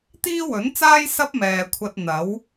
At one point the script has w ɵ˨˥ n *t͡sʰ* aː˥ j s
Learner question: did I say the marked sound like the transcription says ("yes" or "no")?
no